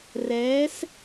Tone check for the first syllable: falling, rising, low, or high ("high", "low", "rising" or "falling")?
rising